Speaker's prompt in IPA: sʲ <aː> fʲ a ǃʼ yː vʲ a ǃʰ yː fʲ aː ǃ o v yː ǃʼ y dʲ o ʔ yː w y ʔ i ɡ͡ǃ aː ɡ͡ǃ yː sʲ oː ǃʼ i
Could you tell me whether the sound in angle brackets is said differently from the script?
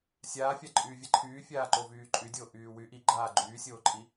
no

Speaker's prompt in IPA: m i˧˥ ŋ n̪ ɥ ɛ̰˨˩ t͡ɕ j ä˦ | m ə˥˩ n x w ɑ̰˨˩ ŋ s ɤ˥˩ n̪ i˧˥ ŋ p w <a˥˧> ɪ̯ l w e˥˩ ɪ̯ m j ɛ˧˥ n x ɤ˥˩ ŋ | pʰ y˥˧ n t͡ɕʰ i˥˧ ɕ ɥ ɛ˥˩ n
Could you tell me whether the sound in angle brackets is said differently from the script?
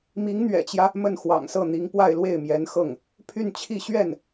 no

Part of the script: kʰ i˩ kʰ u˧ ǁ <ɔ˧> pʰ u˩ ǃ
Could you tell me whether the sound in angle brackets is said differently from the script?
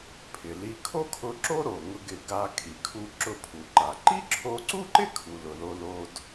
yes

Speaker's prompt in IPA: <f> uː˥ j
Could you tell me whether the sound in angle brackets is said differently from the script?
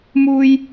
yes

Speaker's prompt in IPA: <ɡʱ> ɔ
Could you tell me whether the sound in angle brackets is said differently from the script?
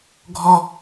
no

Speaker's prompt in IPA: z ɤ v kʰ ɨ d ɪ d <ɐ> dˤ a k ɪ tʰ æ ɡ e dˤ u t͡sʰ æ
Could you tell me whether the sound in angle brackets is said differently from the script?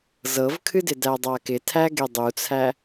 yes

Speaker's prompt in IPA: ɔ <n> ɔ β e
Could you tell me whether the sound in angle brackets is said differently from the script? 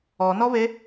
no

